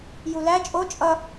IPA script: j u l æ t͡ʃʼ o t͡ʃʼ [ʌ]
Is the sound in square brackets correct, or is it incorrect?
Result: correct